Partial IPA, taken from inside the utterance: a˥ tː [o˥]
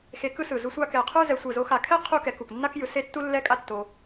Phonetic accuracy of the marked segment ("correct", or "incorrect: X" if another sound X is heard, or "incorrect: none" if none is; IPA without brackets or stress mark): incorrect: o˧